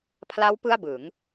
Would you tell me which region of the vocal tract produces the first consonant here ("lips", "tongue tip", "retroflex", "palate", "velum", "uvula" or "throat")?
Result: lips